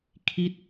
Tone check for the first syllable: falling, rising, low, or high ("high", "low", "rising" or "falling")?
falling